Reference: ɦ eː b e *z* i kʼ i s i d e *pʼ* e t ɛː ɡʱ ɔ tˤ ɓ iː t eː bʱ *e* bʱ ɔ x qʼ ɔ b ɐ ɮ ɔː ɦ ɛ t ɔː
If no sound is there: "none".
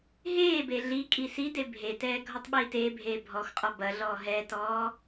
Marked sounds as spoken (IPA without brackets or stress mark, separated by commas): ɮ, bʱ, eː